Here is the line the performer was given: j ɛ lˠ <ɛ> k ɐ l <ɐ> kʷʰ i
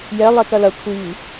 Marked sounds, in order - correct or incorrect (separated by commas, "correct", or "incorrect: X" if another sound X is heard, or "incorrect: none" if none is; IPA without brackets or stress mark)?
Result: correct, correct